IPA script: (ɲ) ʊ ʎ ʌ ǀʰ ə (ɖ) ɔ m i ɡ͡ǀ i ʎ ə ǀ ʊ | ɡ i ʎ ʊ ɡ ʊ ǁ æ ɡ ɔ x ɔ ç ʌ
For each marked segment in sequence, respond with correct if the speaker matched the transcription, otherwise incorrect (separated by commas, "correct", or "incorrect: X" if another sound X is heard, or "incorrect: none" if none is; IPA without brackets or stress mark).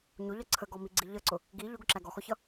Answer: correct, incorrect: ɡ